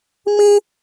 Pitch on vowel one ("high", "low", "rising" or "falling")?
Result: high